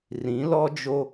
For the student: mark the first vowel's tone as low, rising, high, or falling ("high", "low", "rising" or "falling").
rising